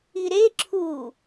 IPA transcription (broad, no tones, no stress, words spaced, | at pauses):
iɾe ǁʰu